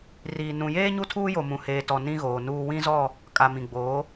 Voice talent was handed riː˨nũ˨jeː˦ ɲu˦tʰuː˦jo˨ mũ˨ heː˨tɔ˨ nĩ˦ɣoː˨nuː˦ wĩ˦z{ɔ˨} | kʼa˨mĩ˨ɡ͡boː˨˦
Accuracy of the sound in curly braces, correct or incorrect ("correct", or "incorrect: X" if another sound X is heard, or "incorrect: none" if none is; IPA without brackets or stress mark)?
incorrect: ɔ˦˨